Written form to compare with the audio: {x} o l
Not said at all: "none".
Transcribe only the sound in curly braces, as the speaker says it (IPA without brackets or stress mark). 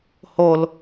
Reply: h